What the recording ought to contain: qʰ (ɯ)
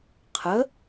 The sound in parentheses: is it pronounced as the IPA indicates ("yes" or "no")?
no